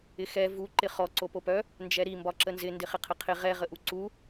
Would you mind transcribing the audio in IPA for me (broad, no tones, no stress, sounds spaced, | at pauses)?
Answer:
ɪ x ɛ v u ǃ ɪ χ ɔ ǀ o p o p œ | n d͡ʒ ɛ ɾ i m b ɒ ǁ ə n z ɪ n d ɪ χ ɪ qʰ ə qʰ ɪ ʁ ɛ ʁ ə ʔ u ǀ u